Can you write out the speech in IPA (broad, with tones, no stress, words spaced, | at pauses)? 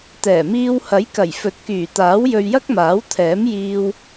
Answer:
t̪ɛː˨˩miː˧w hɐ˨˥jkɐ˨˩j fɵ˨˥t̚kyː˨˩t̪aː˨˥w jɵ˧ɥjɐ˥k̚maː˨˥wt̪ʰɛː˨˥m jiː˧w